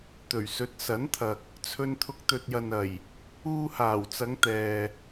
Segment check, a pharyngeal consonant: absent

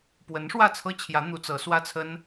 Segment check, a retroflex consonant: present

